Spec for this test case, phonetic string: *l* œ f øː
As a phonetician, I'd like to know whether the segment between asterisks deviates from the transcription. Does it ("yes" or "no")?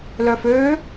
no